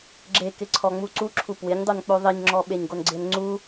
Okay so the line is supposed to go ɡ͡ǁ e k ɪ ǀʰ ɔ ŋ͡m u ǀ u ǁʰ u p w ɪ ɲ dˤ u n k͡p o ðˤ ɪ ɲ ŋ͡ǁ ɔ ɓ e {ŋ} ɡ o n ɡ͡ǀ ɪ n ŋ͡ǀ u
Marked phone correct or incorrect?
incorrect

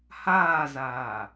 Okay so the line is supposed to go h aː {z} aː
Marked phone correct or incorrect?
correct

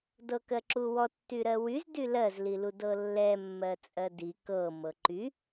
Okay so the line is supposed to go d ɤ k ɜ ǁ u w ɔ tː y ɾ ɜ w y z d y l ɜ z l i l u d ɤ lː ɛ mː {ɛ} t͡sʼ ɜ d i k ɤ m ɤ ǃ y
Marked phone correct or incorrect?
incorrect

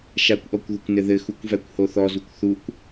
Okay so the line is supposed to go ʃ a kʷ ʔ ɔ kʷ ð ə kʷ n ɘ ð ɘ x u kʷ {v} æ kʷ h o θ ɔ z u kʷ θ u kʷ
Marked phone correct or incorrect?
correct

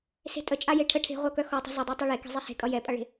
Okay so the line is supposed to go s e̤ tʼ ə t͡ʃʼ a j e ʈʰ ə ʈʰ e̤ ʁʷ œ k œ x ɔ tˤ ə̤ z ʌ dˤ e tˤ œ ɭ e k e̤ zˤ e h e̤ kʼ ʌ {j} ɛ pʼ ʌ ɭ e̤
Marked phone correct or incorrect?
correct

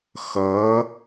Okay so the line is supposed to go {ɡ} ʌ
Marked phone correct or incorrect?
incorrect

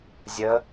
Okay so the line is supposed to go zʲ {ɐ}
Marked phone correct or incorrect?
incorrect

